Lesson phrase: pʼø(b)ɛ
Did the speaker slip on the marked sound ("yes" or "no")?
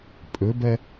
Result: no